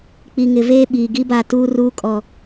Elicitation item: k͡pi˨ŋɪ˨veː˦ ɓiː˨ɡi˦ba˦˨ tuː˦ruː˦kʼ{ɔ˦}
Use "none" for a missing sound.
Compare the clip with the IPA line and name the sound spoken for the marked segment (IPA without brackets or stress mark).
ɔ˨